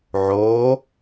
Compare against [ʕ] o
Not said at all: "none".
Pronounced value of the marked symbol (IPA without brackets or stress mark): ʕ